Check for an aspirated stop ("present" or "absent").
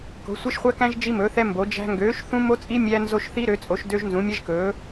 absent